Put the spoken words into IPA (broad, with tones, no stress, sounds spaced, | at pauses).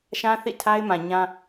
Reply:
ʃ ã˦ θ ḭ˦˨ tʰ a˦ ɪ̯ m ã˨ ɲ ã˦